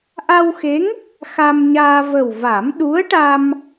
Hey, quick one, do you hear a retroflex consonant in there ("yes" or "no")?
yes